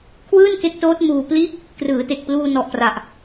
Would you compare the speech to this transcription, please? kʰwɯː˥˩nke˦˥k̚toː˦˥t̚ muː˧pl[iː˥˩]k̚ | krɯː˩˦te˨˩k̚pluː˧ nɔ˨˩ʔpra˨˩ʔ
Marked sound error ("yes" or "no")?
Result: no